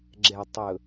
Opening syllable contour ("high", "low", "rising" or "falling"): low